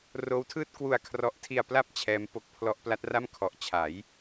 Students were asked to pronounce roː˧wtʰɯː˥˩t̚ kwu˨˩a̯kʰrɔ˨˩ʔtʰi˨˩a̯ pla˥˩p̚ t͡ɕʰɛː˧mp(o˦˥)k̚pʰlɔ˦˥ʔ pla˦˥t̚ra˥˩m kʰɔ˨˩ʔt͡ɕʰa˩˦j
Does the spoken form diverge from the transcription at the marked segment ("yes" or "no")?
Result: no